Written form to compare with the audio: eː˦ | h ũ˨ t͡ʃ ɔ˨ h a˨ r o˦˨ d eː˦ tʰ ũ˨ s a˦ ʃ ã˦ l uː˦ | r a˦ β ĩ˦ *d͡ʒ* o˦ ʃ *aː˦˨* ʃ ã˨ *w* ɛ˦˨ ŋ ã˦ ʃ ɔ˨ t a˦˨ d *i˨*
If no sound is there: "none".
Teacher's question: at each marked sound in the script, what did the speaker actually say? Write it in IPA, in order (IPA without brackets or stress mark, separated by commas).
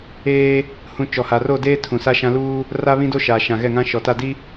d, aː˨, ɣ, i˦